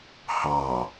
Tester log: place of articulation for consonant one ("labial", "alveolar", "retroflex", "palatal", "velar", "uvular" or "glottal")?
glottal